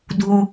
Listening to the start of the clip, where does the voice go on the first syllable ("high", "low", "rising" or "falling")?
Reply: low